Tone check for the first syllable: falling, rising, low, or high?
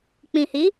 low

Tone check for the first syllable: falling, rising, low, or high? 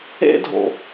high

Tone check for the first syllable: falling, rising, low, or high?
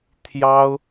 high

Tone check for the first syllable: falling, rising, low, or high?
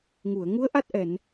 low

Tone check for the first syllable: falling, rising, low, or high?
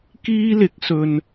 high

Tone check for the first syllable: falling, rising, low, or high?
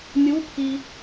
rising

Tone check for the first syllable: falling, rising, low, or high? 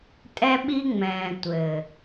high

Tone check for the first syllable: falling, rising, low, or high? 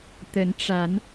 rising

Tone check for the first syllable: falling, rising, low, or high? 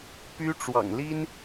high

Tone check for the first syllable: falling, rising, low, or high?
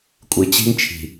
low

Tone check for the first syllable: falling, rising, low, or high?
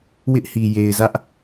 high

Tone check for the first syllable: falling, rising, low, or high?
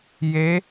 rising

